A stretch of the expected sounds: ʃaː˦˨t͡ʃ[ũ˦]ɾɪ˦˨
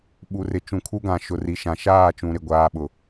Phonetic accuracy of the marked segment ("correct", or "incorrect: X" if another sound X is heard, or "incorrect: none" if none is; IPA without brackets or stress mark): incorrect: ũ˨